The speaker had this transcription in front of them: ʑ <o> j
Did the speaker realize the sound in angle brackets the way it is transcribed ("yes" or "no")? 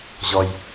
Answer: no